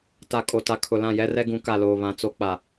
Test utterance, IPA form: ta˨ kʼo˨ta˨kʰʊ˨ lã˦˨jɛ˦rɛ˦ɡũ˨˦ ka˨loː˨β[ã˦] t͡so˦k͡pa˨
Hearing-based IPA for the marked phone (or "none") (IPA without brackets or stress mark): ã˨